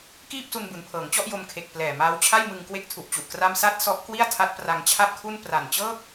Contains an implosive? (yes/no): no